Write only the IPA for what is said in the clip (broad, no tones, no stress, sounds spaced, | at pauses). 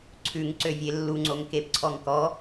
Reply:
ǀʰ ʉ ŋ ǀ ø vʲ e lː u ŋ͡ǀ o ŋ k e p ǀʰ ɔ ŋ k ɔ